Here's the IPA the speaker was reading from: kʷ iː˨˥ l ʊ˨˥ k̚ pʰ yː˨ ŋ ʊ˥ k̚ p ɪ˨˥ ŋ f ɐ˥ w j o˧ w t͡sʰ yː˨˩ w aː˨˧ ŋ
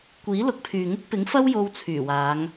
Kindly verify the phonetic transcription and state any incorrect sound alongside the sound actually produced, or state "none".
none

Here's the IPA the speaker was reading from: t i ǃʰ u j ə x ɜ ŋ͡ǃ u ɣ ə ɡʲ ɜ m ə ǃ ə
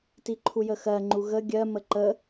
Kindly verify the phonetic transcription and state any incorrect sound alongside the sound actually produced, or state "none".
none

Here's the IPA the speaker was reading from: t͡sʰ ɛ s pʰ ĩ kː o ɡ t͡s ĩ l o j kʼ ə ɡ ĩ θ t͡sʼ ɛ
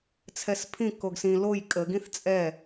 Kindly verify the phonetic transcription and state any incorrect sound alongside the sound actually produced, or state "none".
t͡s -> s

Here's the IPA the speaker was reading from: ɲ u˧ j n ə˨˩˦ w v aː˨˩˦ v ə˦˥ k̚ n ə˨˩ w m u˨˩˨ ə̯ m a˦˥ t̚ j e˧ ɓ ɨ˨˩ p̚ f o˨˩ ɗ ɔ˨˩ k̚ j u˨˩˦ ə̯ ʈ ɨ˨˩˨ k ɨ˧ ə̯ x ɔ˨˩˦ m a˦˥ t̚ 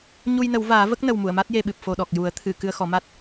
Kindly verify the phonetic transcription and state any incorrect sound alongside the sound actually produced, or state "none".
ʈ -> t̪ʰ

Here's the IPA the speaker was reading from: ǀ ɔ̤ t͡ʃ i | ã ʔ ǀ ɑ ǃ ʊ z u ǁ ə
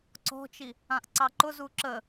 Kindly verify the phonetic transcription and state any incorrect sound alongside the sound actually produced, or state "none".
none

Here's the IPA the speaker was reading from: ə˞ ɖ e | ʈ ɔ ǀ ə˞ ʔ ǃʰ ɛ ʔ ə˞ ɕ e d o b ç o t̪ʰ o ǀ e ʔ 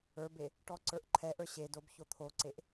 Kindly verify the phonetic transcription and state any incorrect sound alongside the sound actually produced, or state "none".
ɖ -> b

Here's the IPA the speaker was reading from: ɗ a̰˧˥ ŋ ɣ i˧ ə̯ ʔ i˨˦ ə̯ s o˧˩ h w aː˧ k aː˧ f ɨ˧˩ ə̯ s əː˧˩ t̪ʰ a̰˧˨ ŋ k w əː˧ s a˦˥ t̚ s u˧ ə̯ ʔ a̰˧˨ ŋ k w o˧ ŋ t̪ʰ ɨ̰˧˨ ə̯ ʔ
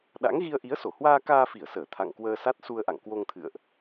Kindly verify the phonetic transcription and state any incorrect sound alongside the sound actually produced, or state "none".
ɨ˧˩ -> i˧˩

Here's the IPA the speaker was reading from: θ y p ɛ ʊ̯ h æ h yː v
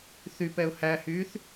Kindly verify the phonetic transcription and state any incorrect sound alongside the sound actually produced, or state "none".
v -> θ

